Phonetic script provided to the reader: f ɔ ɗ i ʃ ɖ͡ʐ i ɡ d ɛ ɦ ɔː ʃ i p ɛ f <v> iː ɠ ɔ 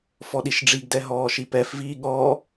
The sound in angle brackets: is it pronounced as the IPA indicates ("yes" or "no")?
yes